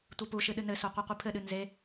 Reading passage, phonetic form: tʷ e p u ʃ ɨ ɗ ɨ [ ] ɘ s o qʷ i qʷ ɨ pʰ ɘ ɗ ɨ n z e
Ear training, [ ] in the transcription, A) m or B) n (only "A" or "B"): B